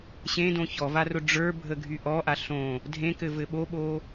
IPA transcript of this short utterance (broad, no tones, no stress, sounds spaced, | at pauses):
ɕ ẽ d õ ç ɔ v a r ʊ ɖ͡ʐ ə˞ bʱ ə ɡʱ y ʔ ɔ ʔ a ɬ õ | dʱ ẽ k ɘ v ɘ ɓ o ɓ o